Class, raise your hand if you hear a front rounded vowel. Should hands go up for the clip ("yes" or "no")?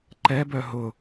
yes